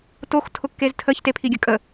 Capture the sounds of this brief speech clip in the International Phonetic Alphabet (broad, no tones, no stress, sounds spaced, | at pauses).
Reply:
t o x tʰ ʊ kː e z tʰ ə ç t e pʰ i ɡʲ ə kʼ ə